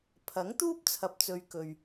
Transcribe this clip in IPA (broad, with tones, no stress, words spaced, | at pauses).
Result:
pʰɐ˨˥ŋt̪uː˥p̚ t͡sʰɐ˨p̚t͡sɵ˨ɥ kɵ˨ɥ